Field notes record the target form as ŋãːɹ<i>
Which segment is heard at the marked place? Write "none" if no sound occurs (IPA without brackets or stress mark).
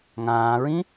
ĩ